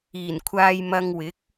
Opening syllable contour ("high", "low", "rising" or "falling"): low